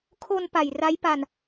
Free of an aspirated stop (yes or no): no